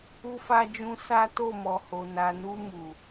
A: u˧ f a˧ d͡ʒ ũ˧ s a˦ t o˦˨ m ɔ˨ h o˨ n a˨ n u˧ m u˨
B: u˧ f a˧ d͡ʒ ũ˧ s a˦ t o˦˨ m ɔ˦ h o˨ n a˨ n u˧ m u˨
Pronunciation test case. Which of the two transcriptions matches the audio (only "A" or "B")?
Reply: A